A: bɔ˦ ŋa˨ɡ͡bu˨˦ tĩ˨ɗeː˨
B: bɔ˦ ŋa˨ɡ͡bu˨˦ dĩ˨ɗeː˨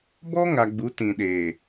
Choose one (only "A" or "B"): A